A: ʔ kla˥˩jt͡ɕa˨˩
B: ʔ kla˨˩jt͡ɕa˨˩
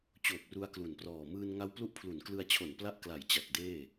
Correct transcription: B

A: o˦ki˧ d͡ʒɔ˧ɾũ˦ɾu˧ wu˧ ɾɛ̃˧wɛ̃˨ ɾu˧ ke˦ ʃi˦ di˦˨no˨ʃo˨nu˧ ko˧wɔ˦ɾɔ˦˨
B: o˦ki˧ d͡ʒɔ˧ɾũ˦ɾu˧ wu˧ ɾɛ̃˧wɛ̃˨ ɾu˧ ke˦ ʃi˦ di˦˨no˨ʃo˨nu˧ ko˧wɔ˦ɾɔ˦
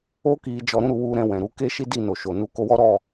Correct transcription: A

